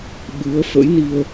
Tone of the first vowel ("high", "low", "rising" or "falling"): rising